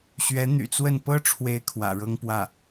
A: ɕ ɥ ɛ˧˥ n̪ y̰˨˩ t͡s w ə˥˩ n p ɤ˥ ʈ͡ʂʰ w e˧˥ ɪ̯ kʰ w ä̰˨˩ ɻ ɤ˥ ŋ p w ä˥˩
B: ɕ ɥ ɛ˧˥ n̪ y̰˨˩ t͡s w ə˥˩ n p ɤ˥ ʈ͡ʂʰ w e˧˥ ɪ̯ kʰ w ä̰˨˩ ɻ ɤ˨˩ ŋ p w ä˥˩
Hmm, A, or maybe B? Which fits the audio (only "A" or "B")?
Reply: A